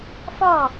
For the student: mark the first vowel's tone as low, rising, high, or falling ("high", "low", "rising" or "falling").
falling